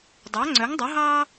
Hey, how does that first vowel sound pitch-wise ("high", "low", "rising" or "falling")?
rising